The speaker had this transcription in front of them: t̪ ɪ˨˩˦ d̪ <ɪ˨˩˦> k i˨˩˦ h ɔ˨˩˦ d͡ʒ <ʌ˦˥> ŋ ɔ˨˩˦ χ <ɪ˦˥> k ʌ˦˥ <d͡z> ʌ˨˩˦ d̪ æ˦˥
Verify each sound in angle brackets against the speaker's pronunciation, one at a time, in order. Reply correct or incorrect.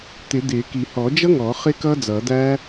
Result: correct, correct, correct, correct

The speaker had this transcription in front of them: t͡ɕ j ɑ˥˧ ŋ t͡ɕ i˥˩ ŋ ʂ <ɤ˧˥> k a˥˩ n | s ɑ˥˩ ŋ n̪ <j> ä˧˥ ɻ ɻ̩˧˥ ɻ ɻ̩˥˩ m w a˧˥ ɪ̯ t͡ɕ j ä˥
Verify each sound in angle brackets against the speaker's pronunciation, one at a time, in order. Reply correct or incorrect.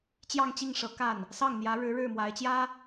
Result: correct, correct

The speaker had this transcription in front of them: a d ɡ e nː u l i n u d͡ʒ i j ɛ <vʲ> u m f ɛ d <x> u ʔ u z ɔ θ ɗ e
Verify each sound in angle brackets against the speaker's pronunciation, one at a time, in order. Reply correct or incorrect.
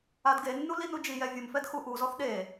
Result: correct, correct

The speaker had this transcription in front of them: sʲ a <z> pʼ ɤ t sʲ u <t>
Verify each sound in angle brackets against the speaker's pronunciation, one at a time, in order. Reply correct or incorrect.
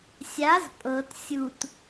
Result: correct, correct

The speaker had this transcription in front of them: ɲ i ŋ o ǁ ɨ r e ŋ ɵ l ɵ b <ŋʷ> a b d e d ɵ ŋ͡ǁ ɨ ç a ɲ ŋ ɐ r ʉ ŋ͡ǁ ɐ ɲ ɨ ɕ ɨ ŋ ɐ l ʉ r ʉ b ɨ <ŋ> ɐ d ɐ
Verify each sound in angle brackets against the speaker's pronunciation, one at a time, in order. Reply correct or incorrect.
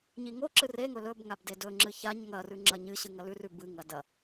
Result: incorrect, correct

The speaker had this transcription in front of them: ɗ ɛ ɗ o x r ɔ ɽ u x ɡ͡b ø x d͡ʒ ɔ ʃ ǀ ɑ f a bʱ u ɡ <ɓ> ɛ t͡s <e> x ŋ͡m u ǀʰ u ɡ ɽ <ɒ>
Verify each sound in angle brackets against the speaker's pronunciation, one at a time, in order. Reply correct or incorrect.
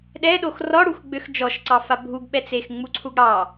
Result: correct, correct, incorrect

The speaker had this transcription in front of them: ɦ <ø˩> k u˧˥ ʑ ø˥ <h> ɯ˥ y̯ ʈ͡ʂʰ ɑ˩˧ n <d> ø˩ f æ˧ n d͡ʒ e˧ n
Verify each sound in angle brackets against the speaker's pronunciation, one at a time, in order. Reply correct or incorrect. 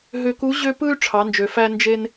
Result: incorrect, incorrect, incorrect

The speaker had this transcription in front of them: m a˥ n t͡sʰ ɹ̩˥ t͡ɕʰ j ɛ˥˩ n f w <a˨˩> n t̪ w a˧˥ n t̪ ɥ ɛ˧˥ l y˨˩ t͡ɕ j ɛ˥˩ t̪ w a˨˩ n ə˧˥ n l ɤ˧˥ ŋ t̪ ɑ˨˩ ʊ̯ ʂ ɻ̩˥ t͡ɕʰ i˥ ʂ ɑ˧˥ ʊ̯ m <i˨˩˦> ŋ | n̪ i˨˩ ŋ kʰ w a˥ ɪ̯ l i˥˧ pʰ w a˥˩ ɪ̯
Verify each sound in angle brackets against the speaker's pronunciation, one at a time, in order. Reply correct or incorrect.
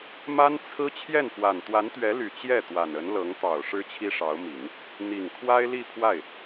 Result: correct, correct

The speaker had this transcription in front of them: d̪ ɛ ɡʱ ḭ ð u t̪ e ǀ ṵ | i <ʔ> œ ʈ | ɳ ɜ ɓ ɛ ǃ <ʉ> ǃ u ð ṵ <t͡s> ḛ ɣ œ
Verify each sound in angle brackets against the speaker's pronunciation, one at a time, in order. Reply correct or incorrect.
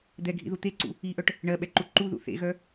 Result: correct, incorrect, incorrect

